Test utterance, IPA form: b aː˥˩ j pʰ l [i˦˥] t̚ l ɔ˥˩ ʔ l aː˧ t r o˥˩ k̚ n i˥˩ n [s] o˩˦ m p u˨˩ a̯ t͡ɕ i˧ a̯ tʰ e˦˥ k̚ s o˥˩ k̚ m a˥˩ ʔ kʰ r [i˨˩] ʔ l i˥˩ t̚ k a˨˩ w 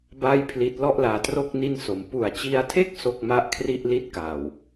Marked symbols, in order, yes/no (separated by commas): yes, yes, no